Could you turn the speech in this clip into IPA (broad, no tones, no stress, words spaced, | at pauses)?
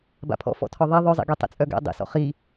ba̰pʰɔ̰ fɔ̰tʰɔðˤe ðˤœzˤḭɡi tˤḛt͡sʼœɡɛ̰ dˤḭsɔ̰ χi